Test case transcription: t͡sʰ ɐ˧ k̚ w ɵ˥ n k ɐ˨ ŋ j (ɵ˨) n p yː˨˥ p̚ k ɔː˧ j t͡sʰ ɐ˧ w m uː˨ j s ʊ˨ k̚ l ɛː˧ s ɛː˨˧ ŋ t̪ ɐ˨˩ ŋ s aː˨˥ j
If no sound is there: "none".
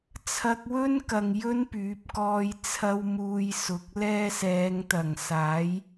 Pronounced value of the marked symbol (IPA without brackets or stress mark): ɵ˥